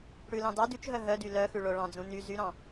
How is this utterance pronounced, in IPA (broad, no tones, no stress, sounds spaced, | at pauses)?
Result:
ɽ ʉ l ɑ̃ d ɑ d ʉ t͡ʃ ɦ œ ɦ œ d y l œ x ʉ ɭ o ɭ ɑ̃ d͡z ũ n y z y ɾ ɑ̃